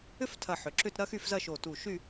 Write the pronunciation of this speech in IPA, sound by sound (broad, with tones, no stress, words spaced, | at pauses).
ʏ˥ftʰɐ˧˩ ħʏ˩˧ǁʏ˥˧t ɾɐ˥xy˥˧fzɐ˥˧ ʃo˧˩tu˧˩ʃy˥˧